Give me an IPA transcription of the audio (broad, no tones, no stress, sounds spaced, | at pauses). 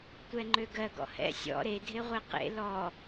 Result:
tʷ ɛ ŋ͡ǃ ø ɡ ɜ ɡ ɔ̰ h ɛ̰ sʲ ɔ̰ ɾ e dʱ e ʁʷ e q ḛ l ɔ